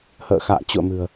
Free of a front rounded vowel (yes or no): yes